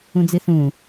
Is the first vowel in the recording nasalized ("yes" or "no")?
yes